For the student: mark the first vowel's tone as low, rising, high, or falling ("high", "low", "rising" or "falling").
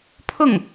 falling